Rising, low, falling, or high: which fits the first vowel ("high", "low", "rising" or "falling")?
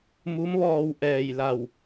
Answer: rising